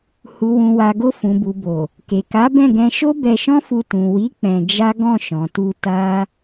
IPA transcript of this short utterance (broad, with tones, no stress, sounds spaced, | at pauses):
h u˨ w ũ˨ w a˨ ɡ o˧ f ũ˨ b u˨ b o˨ | k e˨ k a˨˦ b ɛ̃˦˨ ɡ ɛ̃˧ ʃ o˦ b ɛ˧ ʃ ɔ̃˦ f u˧ t ũ˨ w i˨˦ k͡p ɛ̃˧ d͡ʒ a˦ ɡ ɔ̃˦˨ ʃ ɔ̃˨ t u˧ t a˦